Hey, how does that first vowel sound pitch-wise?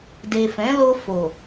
low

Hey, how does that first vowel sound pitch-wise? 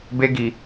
high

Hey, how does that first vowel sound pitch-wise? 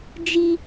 high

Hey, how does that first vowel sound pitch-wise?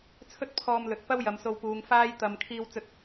high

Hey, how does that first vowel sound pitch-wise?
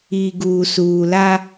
low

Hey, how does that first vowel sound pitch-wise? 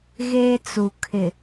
high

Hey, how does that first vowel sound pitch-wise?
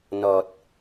low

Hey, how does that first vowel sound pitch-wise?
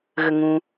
low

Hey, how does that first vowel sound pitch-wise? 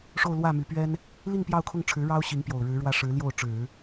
falling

